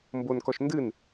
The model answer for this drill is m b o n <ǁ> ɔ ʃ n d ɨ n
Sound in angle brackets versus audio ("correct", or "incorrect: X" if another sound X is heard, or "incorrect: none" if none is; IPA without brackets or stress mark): incorrect: k